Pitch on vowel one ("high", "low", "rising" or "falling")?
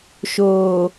low